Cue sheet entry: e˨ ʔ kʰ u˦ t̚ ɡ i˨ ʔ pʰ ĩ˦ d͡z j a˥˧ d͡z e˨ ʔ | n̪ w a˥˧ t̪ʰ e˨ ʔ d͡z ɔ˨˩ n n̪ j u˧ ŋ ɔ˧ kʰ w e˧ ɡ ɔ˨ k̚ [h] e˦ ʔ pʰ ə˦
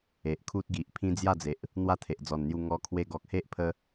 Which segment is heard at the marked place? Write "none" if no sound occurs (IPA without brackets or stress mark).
h